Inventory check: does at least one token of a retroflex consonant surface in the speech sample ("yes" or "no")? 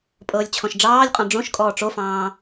yes